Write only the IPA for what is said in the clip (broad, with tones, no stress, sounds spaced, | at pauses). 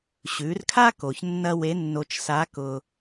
ɕ ʉ˩˧ r kʰ a˥ k o˩ ç nː ɐ˧ w e˧˥ nː o˧ t͡ʃ s a˧˥ k ʊ˧